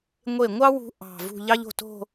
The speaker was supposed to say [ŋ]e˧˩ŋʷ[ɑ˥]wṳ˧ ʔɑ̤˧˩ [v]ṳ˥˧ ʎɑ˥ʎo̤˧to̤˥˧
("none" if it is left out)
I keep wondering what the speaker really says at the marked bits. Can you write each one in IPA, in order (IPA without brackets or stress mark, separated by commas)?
ŋʷ, ɑ˥, v